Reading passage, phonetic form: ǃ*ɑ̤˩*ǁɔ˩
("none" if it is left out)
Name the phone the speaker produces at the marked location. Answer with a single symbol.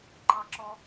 ɑ˩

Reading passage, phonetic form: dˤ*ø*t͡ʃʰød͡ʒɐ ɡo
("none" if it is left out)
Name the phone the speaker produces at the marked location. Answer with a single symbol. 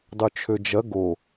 ø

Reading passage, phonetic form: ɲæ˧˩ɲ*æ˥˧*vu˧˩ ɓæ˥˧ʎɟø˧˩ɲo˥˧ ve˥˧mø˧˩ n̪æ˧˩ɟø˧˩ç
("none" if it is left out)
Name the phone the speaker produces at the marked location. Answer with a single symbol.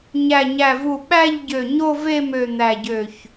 æ˧˩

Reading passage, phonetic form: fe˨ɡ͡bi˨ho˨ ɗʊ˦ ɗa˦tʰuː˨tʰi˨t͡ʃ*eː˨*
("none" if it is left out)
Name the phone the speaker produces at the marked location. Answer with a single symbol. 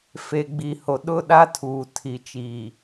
iː˨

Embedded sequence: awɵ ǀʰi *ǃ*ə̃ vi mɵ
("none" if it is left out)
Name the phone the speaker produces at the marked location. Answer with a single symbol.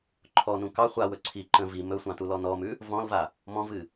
ǃ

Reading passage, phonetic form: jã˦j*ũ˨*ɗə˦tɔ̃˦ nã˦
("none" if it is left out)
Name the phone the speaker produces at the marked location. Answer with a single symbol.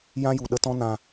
u˨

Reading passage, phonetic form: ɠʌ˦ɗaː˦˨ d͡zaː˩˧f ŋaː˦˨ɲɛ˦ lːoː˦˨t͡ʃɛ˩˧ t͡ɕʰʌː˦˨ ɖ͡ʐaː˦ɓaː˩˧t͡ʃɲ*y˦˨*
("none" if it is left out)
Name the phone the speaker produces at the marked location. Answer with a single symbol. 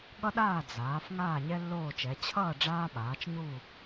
u˦˨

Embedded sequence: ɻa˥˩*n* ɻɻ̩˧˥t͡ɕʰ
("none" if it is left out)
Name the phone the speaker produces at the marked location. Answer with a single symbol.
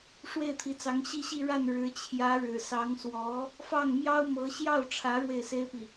n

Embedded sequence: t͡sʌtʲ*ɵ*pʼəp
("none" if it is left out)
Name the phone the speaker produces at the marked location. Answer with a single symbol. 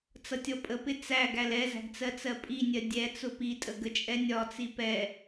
ɔ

